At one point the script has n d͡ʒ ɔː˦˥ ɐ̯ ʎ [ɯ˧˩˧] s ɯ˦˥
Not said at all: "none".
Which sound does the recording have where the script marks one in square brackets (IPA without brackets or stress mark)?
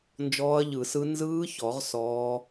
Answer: ɯ˧˩˧